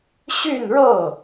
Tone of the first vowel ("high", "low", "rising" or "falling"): falling